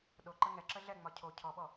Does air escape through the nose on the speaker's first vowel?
no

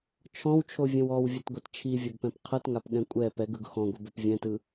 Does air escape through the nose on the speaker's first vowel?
yes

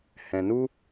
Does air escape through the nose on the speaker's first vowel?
yes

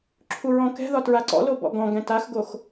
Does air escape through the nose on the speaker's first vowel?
no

